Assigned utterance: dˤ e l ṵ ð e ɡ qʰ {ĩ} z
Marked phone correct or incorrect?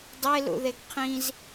correct